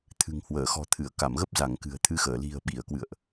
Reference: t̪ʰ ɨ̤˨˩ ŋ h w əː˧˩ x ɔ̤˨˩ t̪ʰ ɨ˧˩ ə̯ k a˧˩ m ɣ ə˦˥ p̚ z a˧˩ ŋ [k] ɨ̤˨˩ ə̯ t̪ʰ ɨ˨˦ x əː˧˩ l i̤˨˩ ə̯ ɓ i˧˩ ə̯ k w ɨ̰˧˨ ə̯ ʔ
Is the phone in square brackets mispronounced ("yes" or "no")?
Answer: no